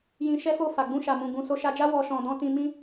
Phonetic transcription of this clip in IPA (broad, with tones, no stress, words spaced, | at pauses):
jĩ˧ʃɛ˦fo˦˨ fa˨ɡ͡bũ˧ʃa˨mũ˨ ɡũ˨ so˧ʃa˧d͡ʒa˦ wɔ˧ʃɔ̃˨ dɔ̃˧tĩ˧mĩ˦